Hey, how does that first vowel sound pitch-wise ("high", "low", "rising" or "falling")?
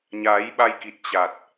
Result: rising